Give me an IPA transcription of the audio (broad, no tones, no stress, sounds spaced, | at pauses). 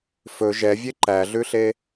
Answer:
f ɵ ʒ ɛ vʲ e ǃ æ ɮ ʉ ɬ e